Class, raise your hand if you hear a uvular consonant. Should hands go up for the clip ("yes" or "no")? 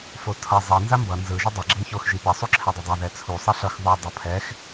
no